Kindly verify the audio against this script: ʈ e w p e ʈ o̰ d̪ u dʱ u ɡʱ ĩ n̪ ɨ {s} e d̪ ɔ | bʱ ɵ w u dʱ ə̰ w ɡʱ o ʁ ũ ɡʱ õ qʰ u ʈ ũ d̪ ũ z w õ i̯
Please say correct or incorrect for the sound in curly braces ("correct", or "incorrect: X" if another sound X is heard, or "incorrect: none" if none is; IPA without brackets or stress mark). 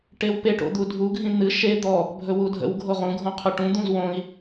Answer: incorrect: ʃ